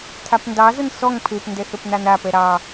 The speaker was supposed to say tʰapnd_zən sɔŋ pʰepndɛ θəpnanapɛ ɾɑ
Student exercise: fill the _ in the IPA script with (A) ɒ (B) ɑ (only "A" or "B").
B